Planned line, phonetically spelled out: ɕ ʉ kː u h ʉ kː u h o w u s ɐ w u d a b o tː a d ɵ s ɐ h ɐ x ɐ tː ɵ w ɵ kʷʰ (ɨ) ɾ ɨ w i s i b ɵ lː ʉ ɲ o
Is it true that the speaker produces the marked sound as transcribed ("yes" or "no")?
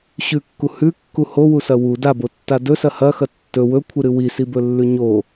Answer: yes